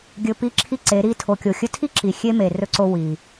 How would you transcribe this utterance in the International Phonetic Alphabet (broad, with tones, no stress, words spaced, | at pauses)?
ɡʲɵ˧pi˦˨ǁʰi˦ǀe˨˦ ɾi˧tʰo˨kʲo˨ xʲɵ˧tʰi˦ǁi˨ xʲe˦me˨ rɵ˧ǀo˧ wi˨